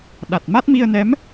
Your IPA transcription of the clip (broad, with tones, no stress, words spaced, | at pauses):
ɗa˨˩t̚ma˦˥t̚ mi˧ə̯nɛ˧˥m